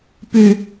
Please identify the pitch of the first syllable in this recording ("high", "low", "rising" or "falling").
low